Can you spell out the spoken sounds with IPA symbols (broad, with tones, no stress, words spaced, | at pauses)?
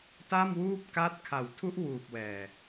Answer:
ta˥˩mwuː˥˩p̚ ka˦˥t̚ kʰa˨˩wtʰu˦˥ʔwuː˨˩p̚wɛː˨˩